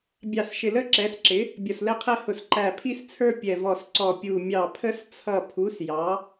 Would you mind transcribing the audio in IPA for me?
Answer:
bʲ ɑ˧˩ s ʃ ɪ˧˩ l ə˦ ǁ ɛ˩˥ s ǁ ɪ˩˥ | bʲ ʌ˧˩ s l ɛ˦ qʰ ɛ˦ h ʊ˧˩ s ǃ æ˧˩ pʰ i˦ s t͡sʰ ə˞˦ pʲ ɛ˧˩ v ɔ˧˩ s ǀ ɔ˧˩ pʲ u˧˩ mʲ ɑ˧˩ pʰ ə˦ s t͡sʰ ʌ˧˩ pʰ u˩˥ s j ɑ˩˥

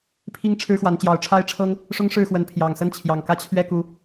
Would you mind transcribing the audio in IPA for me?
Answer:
pʰ i˦ ŋ ʈ͡ʂʰ ɻ̩˦ x w a˨˦ n t͡ɕ j ɑ˨˦ ʊ̯ ʈ͡ʂʰ a˦ ɪ̯ ʈ͡ʂʰ ɤ˦ ŋ | ʂ ʊ˦ ŋ ʂ ɻ̩˥˨ x w ə˨˦ n pʰ j ɑ˨˩ ŋ s ə˦ n t͡ɕʰ j ɑ˨˩ ŋ k ä˦ t͡ɕʰ ɥ ɛ˥˨ k u˨˦

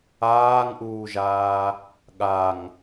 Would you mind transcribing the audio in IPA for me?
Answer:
aː ŋ ʔ uː ʒ aː | ɠ a ŋ

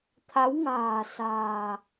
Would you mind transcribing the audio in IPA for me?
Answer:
t̪ʰ a˨˦ w ŋ a̤ː˨˩ s a̤ː˨˩

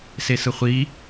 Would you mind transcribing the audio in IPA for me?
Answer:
s e s ɯ χʷ i

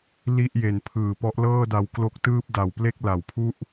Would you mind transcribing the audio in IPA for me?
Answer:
l i˥˩ ʔ j e˨˩ n pʰ ɯː˨˩ p ɔ˦˥ ʔ l ɤː˥˩ d a˧ w k l o˦˥ k̚ t ɯː˥˩ p̚ d a˨˩ w p l e˥˩ k̚ l a˩˦ w pʰ u˥˩ ʔ

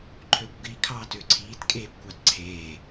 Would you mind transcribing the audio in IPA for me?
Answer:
ǃʰ ø kʷ ɡ i kʰ ɑː t ø ǀʰ iː t kʼ eː b kʷ ɑ t ǀʰ eː

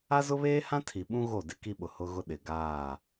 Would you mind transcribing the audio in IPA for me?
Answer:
a˦ z ʊ˦ β eː˦ h ã˦ tʰ i˨ ɓ ũ˦ ɣ o˦˨ d ɪ˦ k i˦ ɓ ʊ˨ h ʊ˦ ɣ ʊ˦ ɗ ɪ˨ ɡ aː˦˨

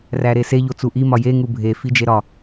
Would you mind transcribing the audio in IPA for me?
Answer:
r æ ɾ e s e ʎ o t͡s u ʔ i m ɒ j e ŋ u bʱ e f i d͡ʒ e ɾ ɒ

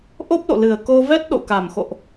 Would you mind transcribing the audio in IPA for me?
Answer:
ʔ o˦˥ p̚ l o̰˧˨ l ɨ˨˩ ə̯ k o˧ v ɛ˦˥ t̚ ɗ o̰˧˨ k a˨˩ m x o̰˧˨ ʔ

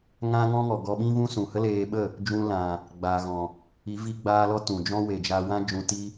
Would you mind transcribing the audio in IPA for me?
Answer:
ŋ ã˦ ŋ ɔ̃˦ ŋ ɔ˨ ɡ ɔ˧ ɓ ĩ˦ v ũ˦ s ũ˨ h ə˦ l eː˧ ɓ ə˦˨ | d͡ʒ ũ˧ l ã˨ | ɡ͡b aː˨ ɣ ɔ̃˨ | i˨˦ v i˧ ɡ͡b aː˧ l ɔ˦ t ũ˨ d͡ʒ ɔ̃˦ w e˨ d͡ʒ a˧ w ã˦ d͡ʒ ũ˧ t i˦

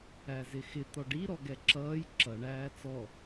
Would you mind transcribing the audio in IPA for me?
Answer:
æ z ɪ x ɪ t̪ ɔ ɖ i ɾ ɔ ɡ ɛ ǁ ʌː j ǁ ʌ ɳ æː t͡s ɔ

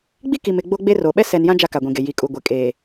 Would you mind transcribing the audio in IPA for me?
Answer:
ɡ͡b i˦ k i˨ m ɪ˦˨ ɡ͡b o˦ ɡ͡b e˦ r o˨ ɓ ɛ˦ s ɛ˨ n j ã˦ d͡ʒ a˦ k a˨ ɡʷ ĩ˨ ɡ e˨ j i˨ kʼ u˨ ɡʷ e˨ kʼ eː˨

